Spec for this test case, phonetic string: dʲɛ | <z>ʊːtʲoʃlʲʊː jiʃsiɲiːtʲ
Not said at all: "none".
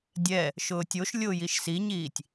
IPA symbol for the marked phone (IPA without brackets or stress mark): ʃ